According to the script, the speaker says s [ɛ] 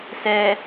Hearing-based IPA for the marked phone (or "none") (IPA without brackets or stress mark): ɛ